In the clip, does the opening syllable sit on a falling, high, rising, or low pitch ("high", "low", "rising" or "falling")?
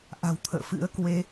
low